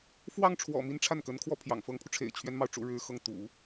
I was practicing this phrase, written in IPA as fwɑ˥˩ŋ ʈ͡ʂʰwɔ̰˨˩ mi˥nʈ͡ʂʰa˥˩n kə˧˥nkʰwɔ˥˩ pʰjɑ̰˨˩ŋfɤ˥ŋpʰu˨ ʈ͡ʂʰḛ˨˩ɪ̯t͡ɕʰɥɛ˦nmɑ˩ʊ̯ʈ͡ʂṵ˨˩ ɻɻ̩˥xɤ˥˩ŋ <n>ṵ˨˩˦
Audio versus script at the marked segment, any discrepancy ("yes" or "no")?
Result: yes